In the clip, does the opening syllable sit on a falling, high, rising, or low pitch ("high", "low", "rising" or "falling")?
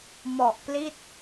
low